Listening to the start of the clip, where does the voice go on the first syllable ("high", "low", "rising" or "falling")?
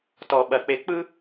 low